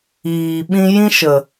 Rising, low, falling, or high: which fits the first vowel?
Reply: low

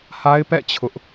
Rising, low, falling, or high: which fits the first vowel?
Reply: high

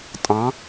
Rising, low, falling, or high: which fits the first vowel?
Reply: rising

